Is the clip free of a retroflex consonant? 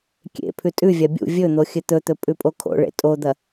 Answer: no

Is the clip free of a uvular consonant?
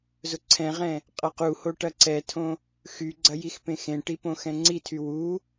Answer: no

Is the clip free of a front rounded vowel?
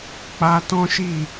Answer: yes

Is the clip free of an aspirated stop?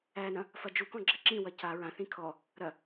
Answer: no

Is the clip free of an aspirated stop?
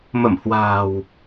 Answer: yes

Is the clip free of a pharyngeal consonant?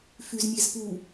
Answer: yes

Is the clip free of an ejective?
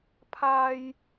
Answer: yes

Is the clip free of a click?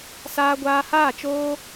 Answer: yes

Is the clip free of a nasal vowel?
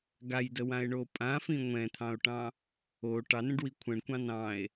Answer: no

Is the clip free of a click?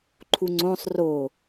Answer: no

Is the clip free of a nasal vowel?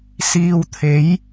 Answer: yes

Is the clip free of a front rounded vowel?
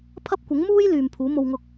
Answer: no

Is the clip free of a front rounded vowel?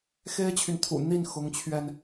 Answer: no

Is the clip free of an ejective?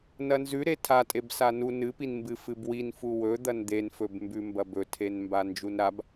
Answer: no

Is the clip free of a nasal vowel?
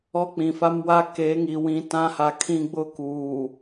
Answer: no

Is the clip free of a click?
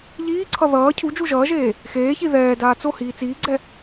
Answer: no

